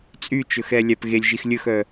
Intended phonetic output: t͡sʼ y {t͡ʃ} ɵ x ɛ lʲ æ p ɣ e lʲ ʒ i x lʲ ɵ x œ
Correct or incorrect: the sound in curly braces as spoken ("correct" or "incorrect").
correct